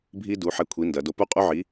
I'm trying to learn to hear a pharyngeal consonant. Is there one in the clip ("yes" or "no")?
yes